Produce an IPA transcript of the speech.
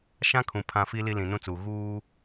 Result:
ʃ ã˦ kʰ ũ˨ pʰ ã˨ f i˨ l i˨ l ĩ˨ n ũ˦ t͡s uː˨ ɣ uː˦

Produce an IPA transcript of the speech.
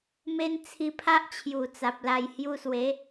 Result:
m e˦ n t͡sʰ i˧ pʰ a˦ ʔ t͡ɕʰ j u˨˩ t͡s a˨ p̚ l a˧ j h j u˧ s w e˨˦

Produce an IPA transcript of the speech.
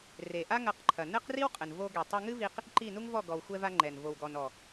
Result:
r e˨ ʔ a˦ ŋ ɐ˧ q ǃʰ ɐ˨ n ɘ˦ q r i˦ w qʼ ɘ˨ n v o˧ ɡ ɛ˨ tˤ ɘ˧ ŋ ɨ˦ v i˧ q | ǃ i˦˨ n u˦ ŋ v ɔ˦˨ ɡ ɔ˨ w xʷ ɛ˧ v a˧ ŋ͡ǃ ɛ˨ n v o˨ w ɡ ɔ˨ n ɔ˨

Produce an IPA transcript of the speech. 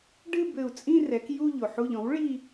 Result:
ɖ ɨ˥˧ b ɘ˧˩ u̯ t͡sʼ ĩ˥˧ r ɛ˩˥ k j u˥˧ ʎ o˩ ħ u˧˩ ʎ ɔ̃˩˥ w ɭ i˥˧

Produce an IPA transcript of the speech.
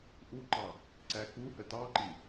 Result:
ʔ u ǃ ɑ | ǀ æ k u h ə t ɑ ǃ i

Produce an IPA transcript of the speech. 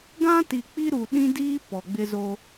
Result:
ɡ ã˦ t i˨ k͡p i˦ ɾ u˨ ɗ ĩ˦ d iː˦ p ɔ˨ ɡ͡b ɪ˦ z o˦

